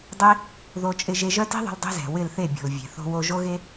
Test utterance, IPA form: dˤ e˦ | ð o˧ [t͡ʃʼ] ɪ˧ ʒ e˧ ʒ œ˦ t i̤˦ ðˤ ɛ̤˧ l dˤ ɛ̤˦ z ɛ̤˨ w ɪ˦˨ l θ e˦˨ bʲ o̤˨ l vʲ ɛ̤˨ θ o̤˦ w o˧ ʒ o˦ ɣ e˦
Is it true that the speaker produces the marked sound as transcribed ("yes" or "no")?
yes